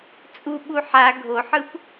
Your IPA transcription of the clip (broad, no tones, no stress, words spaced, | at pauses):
t͡sʼuɓu ħa ɡʱoħɯp